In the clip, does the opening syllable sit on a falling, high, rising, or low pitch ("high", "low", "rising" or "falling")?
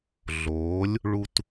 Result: rising